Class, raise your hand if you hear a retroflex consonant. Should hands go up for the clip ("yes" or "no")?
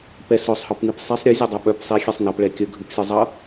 yes